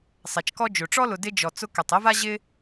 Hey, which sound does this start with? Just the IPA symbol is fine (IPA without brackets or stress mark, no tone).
sˤ